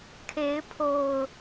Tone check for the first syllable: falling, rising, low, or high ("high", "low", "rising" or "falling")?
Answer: rising